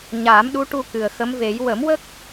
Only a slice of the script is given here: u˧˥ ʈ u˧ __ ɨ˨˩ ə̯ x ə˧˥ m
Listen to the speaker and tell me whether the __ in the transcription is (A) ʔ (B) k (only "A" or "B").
B